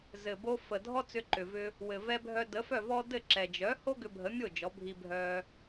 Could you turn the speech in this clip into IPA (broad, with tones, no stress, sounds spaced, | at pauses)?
z ɘ˩ b o˧ f ə˩ dʱ ɔ˥ t͡s ʏ˧ ǃ ʏ˩ v ʏ˧ | w ɘ˩ v ɛ˧ bʱ œ˧ d ə˩˥ f œ˥˩ v ɔ˥ d ɘ˥˩ ǁ ɛ˩ d͡ʒ œ˩˥ h o˥ ɡ ʏ˧ bʱ ə˩˥ mʲ o˥˩ d͡ʒ ɔ˩˥ bʱ i˧ bʱ œ˧